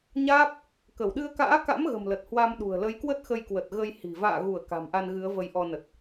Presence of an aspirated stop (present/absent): absent